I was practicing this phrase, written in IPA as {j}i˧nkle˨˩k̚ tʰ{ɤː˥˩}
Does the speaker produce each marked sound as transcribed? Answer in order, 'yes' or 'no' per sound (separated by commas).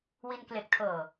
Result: no, no